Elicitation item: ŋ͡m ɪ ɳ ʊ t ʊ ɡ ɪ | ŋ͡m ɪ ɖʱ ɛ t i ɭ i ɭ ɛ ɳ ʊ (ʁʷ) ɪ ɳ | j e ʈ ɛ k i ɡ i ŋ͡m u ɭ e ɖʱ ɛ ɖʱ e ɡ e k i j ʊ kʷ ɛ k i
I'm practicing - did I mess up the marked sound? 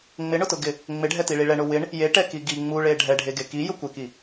yes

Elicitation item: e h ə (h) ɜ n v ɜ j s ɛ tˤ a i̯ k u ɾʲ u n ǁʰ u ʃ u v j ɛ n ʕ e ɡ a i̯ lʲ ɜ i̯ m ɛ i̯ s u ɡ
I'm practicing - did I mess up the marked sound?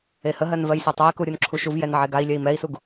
yes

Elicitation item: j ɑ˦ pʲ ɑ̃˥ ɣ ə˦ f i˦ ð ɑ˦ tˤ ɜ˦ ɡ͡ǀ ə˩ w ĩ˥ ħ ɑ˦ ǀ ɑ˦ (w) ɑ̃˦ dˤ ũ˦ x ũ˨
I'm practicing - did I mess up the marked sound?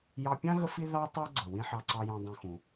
yes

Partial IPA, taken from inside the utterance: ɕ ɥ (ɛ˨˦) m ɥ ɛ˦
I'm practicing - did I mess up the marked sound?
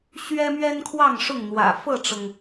yes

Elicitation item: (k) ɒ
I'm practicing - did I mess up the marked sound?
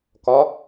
no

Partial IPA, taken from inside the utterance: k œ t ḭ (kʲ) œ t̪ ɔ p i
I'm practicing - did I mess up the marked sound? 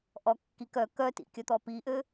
no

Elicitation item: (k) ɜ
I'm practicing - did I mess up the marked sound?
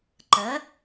yes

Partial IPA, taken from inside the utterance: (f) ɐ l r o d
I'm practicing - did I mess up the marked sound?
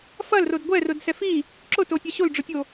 no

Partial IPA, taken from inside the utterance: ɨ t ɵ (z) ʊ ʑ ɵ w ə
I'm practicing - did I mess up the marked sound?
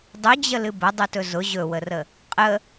no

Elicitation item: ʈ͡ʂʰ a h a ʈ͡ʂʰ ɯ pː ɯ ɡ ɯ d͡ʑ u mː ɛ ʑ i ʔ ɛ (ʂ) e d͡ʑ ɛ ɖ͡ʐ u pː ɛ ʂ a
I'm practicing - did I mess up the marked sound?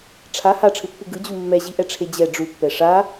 yes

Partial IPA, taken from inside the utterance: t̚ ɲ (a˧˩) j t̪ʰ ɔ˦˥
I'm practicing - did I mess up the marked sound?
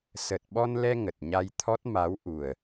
yes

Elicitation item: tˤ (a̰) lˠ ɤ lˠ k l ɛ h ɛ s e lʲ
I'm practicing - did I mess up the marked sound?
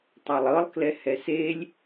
yes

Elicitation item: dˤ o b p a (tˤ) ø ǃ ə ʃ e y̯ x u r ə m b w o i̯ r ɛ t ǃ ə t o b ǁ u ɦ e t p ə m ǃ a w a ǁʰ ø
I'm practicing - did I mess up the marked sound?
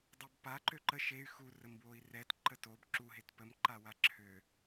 yes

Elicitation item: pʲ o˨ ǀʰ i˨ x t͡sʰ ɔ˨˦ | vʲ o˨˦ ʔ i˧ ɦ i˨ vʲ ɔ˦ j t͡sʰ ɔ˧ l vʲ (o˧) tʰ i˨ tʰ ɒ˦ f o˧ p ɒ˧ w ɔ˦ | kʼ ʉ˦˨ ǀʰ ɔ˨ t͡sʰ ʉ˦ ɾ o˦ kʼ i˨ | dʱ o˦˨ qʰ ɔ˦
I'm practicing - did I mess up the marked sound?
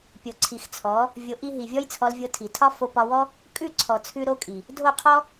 no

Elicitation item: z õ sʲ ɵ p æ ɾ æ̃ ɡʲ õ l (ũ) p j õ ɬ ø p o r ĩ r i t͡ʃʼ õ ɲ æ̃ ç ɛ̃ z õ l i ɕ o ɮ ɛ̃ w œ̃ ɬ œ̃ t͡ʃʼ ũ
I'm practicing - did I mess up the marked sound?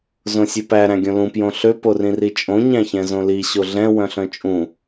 no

